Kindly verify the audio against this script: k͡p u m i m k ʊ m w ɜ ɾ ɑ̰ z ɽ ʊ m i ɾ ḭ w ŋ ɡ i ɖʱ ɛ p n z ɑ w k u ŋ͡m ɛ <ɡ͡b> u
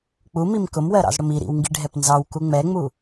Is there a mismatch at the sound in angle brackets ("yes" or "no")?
yes